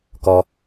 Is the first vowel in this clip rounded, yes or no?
yes